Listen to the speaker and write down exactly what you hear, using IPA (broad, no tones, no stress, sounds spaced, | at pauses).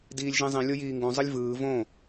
d iː lʲ ʒ ĩ zˤ ĩ lʲ o j iː ŋ ɡ ũ zˤ ɯ lʲ v ɯː v õ